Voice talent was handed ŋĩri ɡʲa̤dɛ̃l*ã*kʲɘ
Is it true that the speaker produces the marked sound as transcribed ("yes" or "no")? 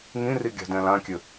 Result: yes